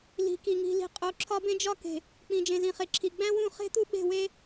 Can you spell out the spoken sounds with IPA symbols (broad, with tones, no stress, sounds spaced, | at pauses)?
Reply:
l i̤˨ k i˨ ŋ i̤˨ l i̤˨ qʼ o˨ ǁʰ ɒ˦ b ẽ˦ d͡ʒ ɒ˦ k e̤˨ | k͡p ĩ˨ d͡ʒ ẽ˨ z ĩ˨ χ e˨ ǁʰ i˨ ɡ͡b æ̃˦ w ũ˦˨ χ e̤˦ t̪ u˦ ɓ e̤˦˨ w e˦